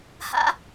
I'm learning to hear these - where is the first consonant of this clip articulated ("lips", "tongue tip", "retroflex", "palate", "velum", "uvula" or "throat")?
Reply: throat